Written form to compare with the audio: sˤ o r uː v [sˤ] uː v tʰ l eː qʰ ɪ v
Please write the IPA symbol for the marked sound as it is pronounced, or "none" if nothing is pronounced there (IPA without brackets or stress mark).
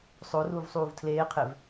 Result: sˤ